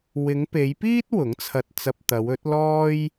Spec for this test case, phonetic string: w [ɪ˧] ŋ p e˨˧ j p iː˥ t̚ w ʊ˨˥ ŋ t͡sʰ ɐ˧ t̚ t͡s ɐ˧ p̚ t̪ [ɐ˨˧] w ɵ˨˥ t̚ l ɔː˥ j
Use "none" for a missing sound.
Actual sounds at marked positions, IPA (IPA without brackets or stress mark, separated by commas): ɪ˨˧, ɐ˨˧